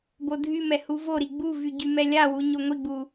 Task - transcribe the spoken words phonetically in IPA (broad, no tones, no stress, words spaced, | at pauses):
bodʱymɛ huvoɾi ɡ͡buvy ɟymɛlʲawu ɲoŋʷiɡ͡bu